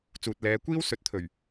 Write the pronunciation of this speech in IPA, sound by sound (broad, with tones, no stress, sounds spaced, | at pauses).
t͡s uː˨ t̚ l ɛː˨˧ kʷ iː˥ w s ɵ˨˥ t̚ t̪ʰ ɵ˨˩ ɥ